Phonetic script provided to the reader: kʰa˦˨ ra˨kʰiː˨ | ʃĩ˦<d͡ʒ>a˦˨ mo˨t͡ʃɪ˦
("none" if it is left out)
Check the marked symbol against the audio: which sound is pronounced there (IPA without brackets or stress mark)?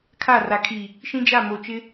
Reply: d͡ʒ